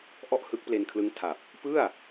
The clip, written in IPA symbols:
ʔ ɔ˥˩ ʔ h ɯ˦˥ k̚ p l e˧ n kʰ l ɯ˦˥ ŋ tʰ a˨˩ p̚ | p ɯ˥˩ a̯

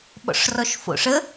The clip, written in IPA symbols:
ɓ ɔ̰ ʂ r ɔ ʃ f o̰ ʂ ə

